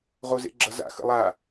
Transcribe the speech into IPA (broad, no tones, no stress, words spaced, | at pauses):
ʁozḛɡ͡ǁʌza̰ xə̰lˠa